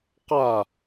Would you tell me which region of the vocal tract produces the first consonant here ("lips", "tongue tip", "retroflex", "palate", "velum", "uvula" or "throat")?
uvula